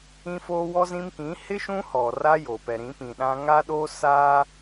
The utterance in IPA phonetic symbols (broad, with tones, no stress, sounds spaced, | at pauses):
ĩ˦ f oː˦ w ɔ˦ z ĩ˦ m k ĩ˨˦ h ɪ˦ ʃ ũ˦ h ɔ˨ r a˦ j oː˨ p ɛ˨ ɾ ĩ˨˦ p ĩ˨ ɗ ã˦ ŋ a˦ ɗ oː˦ s aː˦